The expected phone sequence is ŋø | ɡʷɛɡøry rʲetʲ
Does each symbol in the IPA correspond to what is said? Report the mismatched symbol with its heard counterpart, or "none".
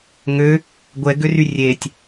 none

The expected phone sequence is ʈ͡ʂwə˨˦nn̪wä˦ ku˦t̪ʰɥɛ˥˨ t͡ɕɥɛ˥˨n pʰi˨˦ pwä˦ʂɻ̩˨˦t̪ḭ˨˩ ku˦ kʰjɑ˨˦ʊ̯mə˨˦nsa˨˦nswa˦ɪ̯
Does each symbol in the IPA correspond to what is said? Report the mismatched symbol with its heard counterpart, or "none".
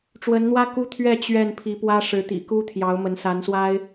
kʰ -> t̪ʰ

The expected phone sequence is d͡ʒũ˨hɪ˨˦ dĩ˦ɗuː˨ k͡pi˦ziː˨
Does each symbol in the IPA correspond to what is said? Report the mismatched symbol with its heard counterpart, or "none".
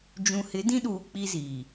none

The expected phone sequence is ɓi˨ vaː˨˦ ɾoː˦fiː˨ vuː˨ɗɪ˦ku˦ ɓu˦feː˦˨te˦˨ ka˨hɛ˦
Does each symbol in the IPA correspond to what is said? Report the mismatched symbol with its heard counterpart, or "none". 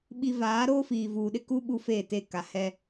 none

